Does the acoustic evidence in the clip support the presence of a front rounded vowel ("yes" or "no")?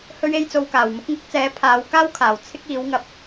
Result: no